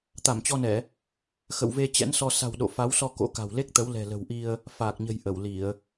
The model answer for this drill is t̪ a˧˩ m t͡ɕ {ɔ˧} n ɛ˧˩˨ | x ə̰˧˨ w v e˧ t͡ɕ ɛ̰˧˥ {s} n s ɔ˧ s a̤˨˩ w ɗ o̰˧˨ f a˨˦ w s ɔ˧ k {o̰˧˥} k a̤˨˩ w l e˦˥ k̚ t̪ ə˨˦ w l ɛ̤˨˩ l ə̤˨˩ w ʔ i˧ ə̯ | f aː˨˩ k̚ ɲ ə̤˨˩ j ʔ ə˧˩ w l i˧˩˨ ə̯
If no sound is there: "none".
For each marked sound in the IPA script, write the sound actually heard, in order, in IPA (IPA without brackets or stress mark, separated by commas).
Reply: ɔ˧, none, o̰˧˥